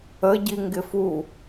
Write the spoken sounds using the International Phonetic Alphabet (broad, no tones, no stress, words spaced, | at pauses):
ə ɟiŋɡɪfu